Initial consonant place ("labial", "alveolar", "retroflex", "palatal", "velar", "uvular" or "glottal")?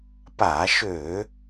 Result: labial